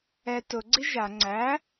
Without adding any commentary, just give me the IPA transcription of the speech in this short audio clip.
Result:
ɛ t ʊ ɡ͡ǀ i ʒ a ŋ͡ǀ æ

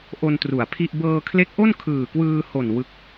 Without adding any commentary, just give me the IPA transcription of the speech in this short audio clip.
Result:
ʔ o˧ n t r u˨˩ a̯ pʰ i˥˩ ʔ b ɤː˧ kʰ l e˦˥ k̚ ʔ o˥˩ n kʰ ɯː˨˩ k w ɯː˧ h o˨˩ n w ɯ˦˥ k̚

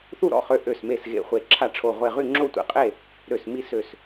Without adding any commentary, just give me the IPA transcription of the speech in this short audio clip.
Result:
θ u˥˨ ɾ ɔ̰˧˩ χ ø˧˩ ʔ ø˧˩ s m e˧˩ s ɣ ḛ˧˩ χʷ e˧˩ ǁʰ a˧˩ ʈ͡ʂʰ o˧˩ ʁʷ e˧˩ ʁ y˥˨ ŋ͡ǁ o˥˨ tʷ ḛ˧˩ qʼ e˥˨ | ɾ ø˧˩ s m i˥˨ s ø˧˩ s

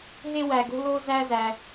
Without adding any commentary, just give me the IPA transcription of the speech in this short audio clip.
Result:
ɦ e˦ w æ˨ ɡ o̤˦ l o˦ z æ˦ z æ˧

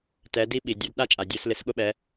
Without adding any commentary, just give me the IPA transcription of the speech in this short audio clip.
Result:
t ɛ˩˧ d i˧ ɓ i˩ dʲ o˩˧ d ɗ a˧˥ t͡ʃʼ a˩ dʲ o˩˧ s l ɪ˩˧ s ɠ ʊ˧ ɓ ɛ˩˧

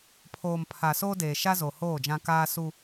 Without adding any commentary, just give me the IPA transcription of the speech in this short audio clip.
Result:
pʰ oː˨ m pʰ a˨ s oː˦ d eː˨ ʃ a˦ z o˨ h oː˦˨ d͡ʒ ã˦ k aː˦ s u˦

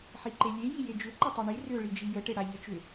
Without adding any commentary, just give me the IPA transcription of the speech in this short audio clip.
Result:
ħ i ǃ e lʲ e j i j e d͡ʒ ʏ ǃ ə tˤ i ɳ i r ʏ ɭ i d͡ʒ i j ə ʈ e ɽ a ʎ ə t͡ʃ ʏ

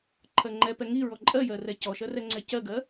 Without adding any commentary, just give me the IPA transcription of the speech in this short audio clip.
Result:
ǃʰ ɜ ŋ͡ǃ ɛ p ɛ ŋ i ɹ ɔ ǃʼ ɜ j ɜ r ɛ c ɔ ʃ ɜ r ɛ ŋ͡ǀ ɛ c ɜ ɡ ɜ

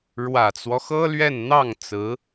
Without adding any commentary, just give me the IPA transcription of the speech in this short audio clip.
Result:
ɻ w ä˨˩ t͡s w ɔ˦ x ɤ˥ l ɥ ɛ˥˧ n n̪ ɑ˥˩ ŋ t͡s ɹ̩˧˥

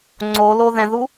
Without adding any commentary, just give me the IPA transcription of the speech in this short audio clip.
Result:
ŋ͡ǀ o l o ð ɛ̃ ð u

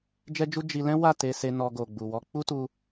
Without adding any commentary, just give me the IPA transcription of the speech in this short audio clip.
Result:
d͡ʒ ɛ˦ d͡ʒ u˦ d͡ʒ i˧ l ɛ̃˦ w a˦˨ t e˧ s e˧ n ɔ˧ ɡ o˨ ɡ͡b u˨ w ɔ˨˦ k͡p u˦ t u˧

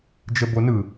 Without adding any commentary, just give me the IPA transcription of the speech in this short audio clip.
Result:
d͡ʒ ə b o n ɯ

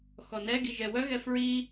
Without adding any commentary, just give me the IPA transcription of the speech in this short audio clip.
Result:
x ɔ n ɛ ɡ i ʒ ɛ w œ ɣ ɛ f ɹ i

